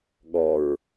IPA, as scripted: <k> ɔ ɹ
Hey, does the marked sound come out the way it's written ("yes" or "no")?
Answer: no